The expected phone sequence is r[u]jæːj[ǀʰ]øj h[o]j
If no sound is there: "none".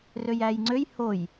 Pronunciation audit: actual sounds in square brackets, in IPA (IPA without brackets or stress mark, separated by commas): ø, ŋ͡ǀ, o